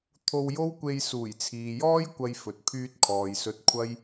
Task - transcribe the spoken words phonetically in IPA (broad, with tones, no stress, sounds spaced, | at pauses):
t̪ʰ o˧ w j o˥ w kʷ e˧ j s uː˨˩ j t͡sʰ iː˨ j ɔː˥ j kʷ ɐ˧ j f ɵ˨ t̚ pʰ yː˧ t̚ kʰ ɔː˨ j s ɵ˧ t̚ kʷʰ ɐ˥ j